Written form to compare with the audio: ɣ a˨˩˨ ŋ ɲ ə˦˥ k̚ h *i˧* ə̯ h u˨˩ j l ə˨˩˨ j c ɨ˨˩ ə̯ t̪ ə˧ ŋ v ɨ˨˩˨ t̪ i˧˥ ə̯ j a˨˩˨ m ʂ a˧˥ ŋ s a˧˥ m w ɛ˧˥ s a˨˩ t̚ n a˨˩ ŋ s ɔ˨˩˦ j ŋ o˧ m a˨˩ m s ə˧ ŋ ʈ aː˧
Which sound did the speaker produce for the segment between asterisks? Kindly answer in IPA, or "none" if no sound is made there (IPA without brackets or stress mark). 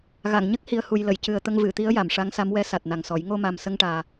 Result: i˨˩